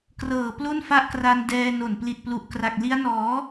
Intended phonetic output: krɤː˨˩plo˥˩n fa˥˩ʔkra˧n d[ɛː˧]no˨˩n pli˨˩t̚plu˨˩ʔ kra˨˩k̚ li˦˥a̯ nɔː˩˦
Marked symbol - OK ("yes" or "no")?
yes